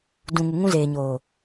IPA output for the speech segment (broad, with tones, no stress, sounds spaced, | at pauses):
d ũ˨ ŋ u˨ ŋ ũ˦ z eː˨ ɲ oː˨